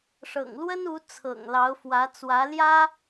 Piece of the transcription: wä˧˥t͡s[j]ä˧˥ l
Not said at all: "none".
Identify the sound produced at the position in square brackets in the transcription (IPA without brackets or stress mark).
w